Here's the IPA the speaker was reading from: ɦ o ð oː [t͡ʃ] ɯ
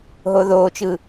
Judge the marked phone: correct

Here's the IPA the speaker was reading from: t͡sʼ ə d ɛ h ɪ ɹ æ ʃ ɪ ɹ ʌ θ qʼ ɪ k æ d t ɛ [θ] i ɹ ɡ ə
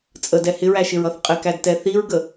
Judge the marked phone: correct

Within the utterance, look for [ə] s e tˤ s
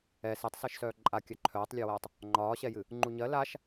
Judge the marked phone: incorrect: ɛ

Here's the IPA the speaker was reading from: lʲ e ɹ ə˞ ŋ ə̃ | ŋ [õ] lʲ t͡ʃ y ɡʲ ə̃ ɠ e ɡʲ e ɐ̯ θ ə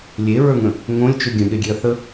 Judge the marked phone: correct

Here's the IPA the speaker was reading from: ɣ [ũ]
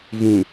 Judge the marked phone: correct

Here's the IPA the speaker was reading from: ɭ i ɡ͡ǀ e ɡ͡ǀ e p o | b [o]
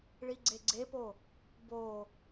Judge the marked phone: correct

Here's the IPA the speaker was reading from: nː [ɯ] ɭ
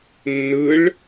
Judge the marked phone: correct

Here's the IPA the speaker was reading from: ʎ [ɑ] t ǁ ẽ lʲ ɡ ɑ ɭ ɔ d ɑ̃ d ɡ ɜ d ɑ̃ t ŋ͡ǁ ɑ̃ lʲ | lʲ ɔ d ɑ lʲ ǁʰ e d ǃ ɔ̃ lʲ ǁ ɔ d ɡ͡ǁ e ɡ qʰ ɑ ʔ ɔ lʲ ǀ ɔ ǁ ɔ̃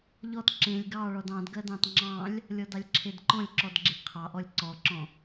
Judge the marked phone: incorrect: ɔ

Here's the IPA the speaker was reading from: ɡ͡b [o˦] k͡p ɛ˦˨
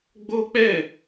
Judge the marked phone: correct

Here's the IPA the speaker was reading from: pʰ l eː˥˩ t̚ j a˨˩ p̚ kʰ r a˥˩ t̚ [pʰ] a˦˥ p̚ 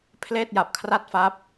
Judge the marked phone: incorrect: f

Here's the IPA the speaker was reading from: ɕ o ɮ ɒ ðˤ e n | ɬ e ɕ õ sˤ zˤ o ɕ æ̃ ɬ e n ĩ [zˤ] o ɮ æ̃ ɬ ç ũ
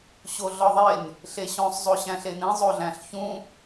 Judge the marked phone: correct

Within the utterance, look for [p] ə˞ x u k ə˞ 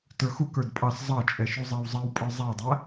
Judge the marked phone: incorrect: t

